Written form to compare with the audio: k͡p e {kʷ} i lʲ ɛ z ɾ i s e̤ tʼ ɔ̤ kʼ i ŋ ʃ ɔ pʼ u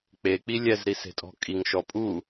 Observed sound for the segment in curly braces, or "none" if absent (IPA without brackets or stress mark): k͡p